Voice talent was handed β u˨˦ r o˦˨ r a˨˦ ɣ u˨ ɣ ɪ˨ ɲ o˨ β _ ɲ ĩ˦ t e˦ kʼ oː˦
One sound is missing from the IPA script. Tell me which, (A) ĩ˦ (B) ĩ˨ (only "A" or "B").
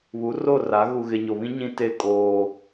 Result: A